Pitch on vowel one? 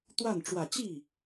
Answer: falling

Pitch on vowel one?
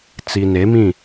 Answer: low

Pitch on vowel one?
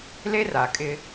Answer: high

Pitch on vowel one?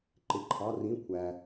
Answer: low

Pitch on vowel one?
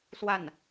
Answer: falling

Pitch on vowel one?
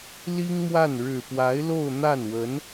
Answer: high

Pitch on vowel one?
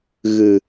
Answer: low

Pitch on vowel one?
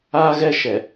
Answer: high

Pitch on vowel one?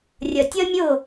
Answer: low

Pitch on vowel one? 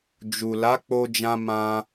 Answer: low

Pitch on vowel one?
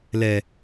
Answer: low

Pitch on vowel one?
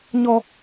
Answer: high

